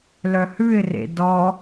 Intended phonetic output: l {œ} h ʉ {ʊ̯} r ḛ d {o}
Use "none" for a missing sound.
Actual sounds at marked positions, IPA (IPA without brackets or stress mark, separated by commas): œ, ɪ̯, ɔ